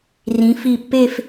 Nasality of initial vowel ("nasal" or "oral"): nasal